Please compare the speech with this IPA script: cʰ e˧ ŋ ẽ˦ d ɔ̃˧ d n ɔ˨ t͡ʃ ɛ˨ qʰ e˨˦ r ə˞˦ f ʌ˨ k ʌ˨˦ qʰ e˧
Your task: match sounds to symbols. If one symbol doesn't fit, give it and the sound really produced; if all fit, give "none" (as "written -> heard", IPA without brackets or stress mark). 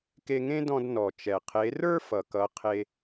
cʰ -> k